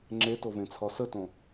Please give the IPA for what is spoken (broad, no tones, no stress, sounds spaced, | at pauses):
ŋ͡ǁ e t o v ẽ t͡sʰ ɒ s ə t õ